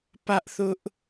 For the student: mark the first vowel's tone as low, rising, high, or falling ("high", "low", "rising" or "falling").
high